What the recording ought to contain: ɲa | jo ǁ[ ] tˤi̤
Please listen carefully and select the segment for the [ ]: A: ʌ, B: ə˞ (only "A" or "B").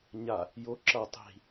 A